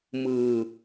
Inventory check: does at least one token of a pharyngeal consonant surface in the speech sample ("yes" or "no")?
no